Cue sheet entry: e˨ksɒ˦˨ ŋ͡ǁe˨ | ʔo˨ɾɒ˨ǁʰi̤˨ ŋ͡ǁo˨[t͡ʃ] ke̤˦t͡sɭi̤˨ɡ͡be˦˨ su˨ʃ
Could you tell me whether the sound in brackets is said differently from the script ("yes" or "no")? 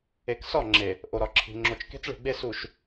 no